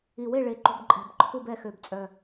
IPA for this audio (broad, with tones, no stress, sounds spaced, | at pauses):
i˨˩ w e˥˨ ɭ e˨˩ ǃ ṳ˨˩ b ǃʼ ɛ̤˨˩ b ǃʰ u˥˨ b ɛ˥˨ x ø˨˩ b t͡sʼ œ˨˩